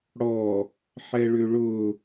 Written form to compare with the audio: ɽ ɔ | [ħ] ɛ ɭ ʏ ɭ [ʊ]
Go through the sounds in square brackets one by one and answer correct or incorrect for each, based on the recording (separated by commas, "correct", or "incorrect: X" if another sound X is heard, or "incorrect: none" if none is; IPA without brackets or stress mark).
correct, correct